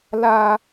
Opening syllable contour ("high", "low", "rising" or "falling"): high